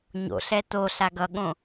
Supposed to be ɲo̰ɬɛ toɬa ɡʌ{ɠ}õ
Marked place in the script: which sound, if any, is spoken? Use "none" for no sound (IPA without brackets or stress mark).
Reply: ɠ